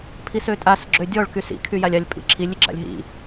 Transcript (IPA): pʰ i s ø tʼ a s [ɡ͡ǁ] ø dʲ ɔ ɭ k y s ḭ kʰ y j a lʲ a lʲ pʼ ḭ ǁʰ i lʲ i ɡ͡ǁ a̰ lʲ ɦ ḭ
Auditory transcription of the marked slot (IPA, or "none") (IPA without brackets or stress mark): ɡ͡ǁ